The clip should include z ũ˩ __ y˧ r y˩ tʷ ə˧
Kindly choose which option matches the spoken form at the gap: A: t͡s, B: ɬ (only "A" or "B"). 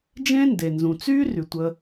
A